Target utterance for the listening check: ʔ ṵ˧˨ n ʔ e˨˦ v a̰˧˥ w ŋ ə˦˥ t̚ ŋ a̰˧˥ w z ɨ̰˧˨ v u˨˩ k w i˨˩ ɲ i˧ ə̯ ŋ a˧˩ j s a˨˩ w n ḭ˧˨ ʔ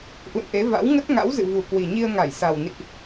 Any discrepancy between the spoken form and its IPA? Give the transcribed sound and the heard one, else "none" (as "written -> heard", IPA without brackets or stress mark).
none